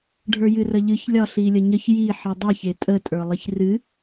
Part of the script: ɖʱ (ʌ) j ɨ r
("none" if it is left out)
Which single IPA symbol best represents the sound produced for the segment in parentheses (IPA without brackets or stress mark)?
ə˞